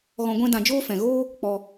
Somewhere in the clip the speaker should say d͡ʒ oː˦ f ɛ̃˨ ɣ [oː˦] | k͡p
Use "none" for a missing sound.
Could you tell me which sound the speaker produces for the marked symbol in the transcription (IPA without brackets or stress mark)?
oː˦